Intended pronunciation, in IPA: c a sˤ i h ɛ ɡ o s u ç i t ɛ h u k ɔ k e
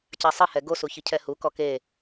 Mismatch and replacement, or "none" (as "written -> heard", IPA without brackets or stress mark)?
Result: t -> cʰ